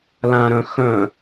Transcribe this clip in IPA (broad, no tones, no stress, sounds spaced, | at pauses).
l ã ɾ œ̃ x œ̃